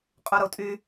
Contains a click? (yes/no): no